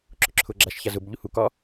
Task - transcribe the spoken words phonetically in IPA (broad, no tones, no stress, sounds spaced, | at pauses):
ǁ ʊ ǁʰ ʊ ɡ͡ǁ a ʃ ç a z ʊ b ʎ u h u k ɒ